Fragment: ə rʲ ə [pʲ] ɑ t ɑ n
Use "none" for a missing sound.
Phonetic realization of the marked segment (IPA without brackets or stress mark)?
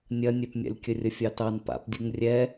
fʲ